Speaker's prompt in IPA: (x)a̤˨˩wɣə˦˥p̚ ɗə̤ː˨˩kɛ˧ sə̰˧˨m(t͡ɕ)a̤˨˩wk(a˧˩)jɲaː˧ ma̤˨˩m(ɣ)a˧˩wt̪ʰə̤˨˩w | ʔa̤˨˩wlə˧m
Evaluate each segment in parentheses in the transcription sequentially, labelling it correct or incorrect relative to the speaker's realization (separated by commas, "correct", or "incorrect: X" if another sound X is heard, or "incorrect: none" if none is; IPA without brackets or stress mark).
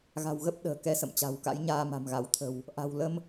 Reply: incorrect: ɣ, correct, incorrect: a̰˧˥, correct